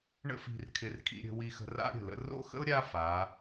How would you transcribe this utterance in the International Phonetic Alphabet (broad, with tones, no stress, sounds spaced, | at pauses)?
ɳ ə̰˥ f i̤˧ r kʰ ɪ˧ r kʰ ḭ˧ ɾʲ ə̤˧ w i˧ x ə̤˧ r a̰˥ ɾʲ ə̤˧˩ l ə̰˧ r o̰˥˧ x ə̰˥ ʊ̯ ɾʲ a˥ f a˩˧